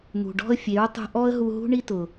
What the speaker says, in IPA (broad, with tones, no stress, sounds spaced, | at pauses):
n̪ ṳ˨ ɖ ɔ̤˦ ə̯ fʲ e˨˦ ɹ tˤ ṳ˧ ʔ ɔ˦ ə̯ ɦ u˧ ɦ ṳ˦ ɳ i˦ t ʊ˨